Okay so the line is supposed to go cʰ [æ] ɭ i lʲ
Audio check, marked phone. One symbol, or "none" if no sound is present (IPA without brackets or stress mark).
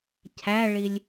æ